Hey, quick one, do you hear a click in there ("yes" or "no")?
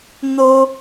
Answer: no